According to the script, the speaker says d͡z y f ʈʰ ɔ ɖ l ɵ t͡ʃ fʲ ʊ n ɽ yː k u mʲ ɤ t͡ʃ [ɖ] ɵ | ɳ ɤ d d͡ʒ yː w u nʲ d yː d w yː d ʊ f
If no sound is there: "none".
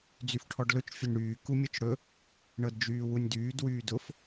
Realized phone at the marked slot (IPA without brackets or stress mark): ɽ